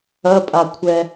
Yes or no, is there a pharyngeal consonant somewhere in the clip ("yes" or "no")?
no